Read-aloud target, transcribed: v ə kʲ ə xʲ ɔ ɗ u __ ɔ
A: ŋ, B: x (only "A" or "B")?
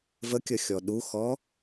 B